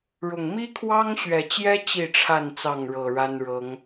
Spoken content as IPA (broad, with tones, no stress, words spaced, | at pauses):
ɻʊ˨˩ŋ mi˦kʰwɑ˦ŋɕɥɛ˨˩t͡ɕjɛ˦ t͡ɕi˥˨ʈ͡ʂʰa˥˨n t͡sɑ˥˨ŋɻɤ˨˩ ɻa˦n ɻɤ˨˦ŋ